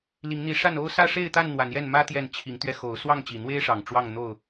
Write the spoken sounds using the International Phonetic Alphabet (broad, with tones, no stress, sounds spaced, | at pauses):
l i˨˦ ŋ n̪ i˨˦ ʂ a˥˨ n o˥˨ ʊ̯ s ä˥˨ ʂ e˥˨ ɪ̯ t̪ a˥˨ n n̪ w a˨˦ n j ɛ˥˨ n m ä˦ t̪ j ɛ˥˨ n t͡ɕʰ i˨˦ ŋ t̪ ɥ ɛ˧ x o˨˦ ʊ̯ s w ɑ˥˨ ŋ t͡ɕ i˨˩ n̪ w e˦ ɪ̯ ʂ ɑ˨˩ ŋ ʈ͡ʂ w ɑ˥˨ ŋ n̪ o˥˨ ʊ̯